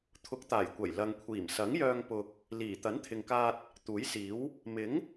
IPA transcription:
t̪ʰ ʊ˨˥ k̚ t̪ aː˨˩ j kʷ ɐ˨˩ j l ɐ˨ ŋ kʷʰ iː˨˩ m s ɐ˨˥ ŋ j œː˧ ŋ p ʊ˨ k̚ | l iː˨˩ t̪ ɐ˨˥ n t̪ʰ ɪ˨ ŋ k aː˧ t̚ | t̪ uː˨˥ j s iː˨˥ w | m ɪ˨˥ ŋ

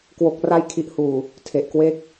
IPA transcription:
k w o˨˩ k̚ r a˧ j kʰ i˨˩ ʔ h uː˨˩ | tʰ e˨˩ ʔ k w e˦˥ k̚

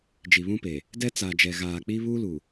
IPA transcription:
d͡ʒ i˨ β ũ˦ p e˨ | d ɛ˦ t͡s a˨ d͡ʒ ɛ˨ ɣ aː˨ k͡p i˦ β u˦ l u˨

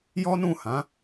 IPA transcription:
j ɔ˦ n ũ˦˨ h ã˨˦

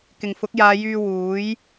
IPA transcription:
k ɪ˨˩ ŋ f ʊ˨˥ k̚ j aː˨˧ j yː˧ w uː˨˥ j

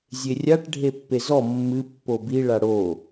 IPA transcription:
zʲ e rʲ a ʈ ɖʱ e pː e z ɔ mː ɨ pː o b i ɭ a ɽ o

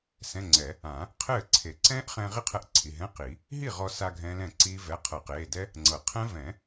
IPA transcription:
s ɛ̃˧˥˧ ŋ͡ǀ ɛ˨˩˦ | ã˨˩˦ | qʰ ɘː˥˩ ǀʰ e˨˩˦ ǀ ɛ̃ː˦˥ ʔ χ ɛ̃˧ ʁ i˦˥ qʰ ɛ˧ ʔ ǀʰ i˩˧˩ ɦ ɛ̃˧˥˧ q i˨˩˦ | ɦ i˥˩ ʁ ɔ˧ s a˧ ɡʱ ɛ̃ː˦˥ l ɛ̃ː˥˩ ǀ iː˦˥ v ɛ˧˥˧ qʰ ɤ˨˩˦ q eː˩˧˩ d ɛ˦˥ | ŋ͡ǀ ɤ˨˩˦ qʰ ɛ̃˦˥ v ɛ̃˨˩˦

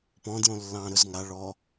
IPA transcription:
p ɔ̃ d j õ lː ɑ̃ ɾ ɵ z ŋ a ɭ ɔ

